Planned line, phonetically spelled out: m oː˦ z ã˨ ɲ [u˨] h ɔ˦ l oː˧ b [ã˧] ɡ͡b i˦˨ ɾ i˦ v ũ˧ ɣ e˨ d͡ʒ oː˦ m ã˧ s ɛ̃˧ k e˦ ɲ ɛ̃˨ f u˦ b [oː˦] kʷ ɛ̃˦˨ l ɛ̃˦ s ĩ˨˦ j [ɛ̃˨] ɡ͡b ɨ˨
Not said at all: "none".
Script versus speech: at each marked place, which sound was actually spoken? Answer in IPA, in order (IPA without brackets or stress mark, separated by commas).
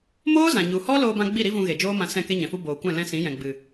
u˨, ã˧, oː˨, ɛ̃˨